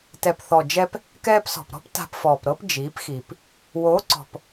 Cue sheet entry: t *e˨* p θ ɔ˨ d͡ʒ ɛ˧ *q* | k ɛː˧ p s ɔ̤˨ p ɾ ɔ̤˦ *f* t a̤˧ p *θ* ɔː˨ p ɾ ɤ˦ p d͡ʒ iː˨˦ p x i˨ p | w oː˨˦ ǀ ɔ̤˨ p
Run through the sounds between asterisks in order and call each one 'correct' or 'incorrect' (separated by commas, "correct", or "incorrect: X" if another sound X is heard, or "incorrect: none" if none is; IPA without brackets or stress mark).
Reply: incorrect: ɛ˨, incorrect: p, incorrect: p, incorrect: f